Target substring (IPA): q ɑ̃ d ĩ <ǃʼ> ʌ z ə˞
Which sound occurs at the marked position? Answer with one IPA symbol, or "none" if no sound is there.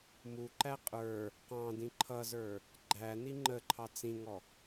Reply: ǃʰ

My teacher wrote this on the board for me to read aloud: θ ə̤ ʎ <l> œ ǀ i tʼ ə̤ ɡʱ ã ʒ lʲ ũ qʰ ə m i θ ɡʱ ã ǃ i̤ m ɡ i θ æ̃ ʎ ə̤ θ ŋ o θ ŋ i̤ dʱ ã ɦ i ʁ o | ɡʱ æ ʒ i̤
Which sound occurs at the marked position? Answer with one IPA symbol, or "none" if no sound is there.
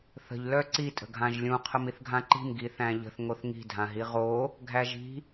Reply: l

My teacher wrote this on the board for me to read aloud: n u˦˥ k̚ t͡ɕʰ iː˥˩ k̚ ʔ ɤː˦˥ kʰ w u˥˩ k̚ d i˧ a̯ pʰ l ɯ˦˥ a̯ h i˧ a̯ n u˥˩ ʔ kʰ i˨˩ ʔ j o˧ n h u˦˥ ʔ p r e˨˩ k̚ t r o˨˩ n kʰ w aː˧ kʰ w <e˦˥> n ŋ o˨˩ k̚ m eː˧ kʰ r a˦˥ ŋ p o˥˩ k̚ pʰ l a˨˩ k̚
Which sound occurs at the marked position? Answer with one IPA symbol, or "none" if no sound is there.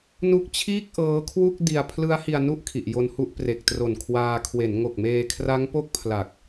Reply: e˩˦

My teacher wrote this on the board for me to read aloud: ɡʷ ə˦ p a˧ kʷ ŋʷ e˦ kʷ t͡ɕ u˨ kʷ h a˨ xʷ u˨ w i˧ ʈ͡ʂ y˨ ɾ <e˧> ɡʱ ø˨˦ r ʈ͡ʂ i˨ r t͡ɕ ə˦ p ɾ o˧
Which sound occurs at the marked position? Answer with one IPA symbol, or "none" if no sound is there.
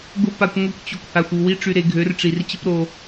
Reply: e˨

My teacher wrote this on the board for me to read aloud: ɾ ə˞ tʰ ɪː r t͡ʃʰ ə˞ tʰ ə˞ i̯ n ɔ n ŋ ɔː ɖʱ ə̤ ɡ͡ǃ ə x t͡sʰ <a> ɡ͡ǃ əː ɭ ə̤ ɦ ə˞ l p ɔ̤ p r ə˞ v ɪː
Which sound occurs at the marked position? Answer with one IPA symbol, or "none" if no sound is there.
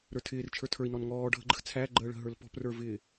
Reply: æ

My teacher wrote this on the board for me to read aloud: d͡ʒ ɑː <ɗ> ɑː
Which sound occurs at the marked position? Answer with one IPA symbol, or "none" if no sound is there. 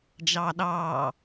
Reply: ɗ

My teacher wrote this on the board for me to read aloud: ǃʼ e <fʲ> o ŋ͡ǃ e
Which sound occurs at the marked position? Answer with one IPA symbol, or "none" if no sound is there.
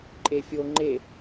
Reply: fʲ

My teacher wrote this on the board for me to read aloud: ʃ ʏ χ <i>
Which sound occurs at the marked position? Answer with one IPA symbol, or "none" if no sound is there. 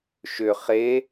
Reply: e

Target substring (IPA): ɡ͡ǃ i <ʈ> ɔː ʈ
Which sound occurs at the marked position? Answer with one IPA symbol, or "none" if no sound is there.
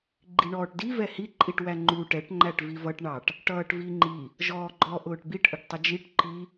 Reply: ɳ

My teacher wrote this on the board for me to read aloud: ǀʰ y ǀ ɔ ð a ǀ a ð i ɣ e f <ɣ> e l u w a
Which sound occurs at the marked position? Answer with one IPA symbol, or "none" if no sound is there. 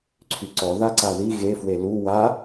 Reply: w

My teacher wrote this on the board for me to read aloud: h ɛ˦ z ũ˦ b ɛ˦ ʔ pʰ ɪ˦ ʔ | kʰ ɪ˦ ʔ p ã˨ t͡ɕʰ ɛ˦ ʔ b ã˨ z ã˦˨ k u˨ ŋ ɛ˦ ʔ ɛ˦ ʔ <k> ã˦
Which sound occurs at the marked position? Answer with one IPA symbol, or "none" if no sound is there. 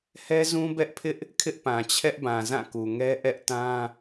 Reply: t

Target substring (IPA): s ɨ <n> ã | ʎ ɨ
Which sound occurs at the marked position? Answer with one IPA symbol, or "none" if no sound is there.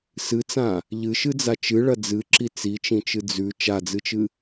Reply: t͡s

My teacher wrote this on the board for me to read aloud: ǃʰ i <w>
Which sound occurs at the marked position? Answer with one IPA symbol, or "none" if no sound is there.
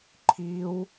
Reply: w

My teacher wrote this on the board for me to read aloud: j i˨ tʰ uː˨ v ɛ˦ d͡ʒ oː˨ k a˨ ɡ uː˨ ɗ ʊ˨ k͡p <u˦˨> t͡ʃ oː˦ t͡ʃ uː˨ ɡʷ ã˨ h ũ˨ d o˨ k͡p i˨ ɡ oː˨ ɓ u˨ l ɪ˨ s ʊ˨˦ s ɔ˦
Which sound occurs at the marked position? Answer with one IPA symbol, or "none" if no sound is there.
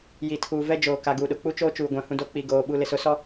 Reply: u˦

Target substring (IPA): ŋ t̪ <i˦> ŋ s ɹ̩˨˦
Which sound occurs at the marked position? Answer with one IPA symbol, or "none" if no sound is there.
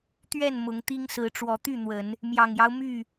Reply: i˦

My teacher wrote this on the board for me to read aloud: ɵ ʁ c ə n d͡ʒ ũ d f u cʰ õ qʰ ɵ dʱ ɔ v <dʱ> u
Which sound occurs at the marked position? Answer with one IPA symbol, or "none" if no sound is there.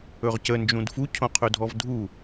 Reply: dʱ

